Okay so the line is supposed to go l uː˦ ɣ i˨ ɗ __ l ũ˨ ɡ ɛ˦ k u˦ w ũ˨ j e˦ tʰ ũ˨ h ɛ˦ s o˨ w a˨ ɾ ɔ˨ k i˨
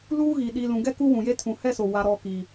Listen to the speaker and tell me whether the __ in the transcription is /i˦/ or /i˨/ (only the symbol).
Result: i˨